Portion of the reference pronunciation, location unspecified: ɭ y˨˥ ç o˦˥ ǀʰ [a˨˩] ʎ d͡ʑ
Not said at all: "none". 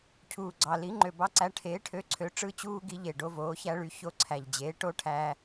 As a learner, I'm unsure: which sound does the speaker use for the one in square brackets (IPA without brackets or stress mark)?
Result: æ˨˩